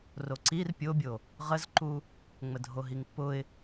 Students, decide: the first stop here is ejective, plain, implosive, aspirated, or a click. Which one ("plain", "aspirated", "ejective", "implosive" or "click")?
click